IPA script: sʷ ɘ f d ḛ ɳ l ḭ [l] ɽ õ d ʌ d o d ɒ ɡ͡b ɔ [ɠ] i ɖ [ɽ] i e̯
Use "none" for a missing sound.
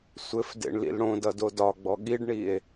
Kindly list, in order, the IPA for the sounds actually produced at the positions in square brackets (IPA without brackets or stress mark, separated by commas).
l, ɠ, ɳ